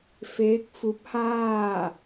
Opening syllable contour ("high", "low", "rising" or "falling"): rising